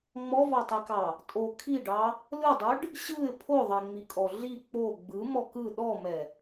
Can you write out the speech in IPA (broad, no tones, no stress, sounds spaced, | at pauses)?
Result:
ŋ͡m ɔ v ɑ tˤ i k ɑ | tʼ o kʰ i ɖ ɑ | l ɯ dˤ ɯ ɖ | ɕ ɯ ɪ̯ pʰ o ðˤ ɛ ŋ͡m i kʼ ɔ ɮ i k͡p o ɡ͡b ɯ m ɔ k ɯ ɗ ɔ m ɛ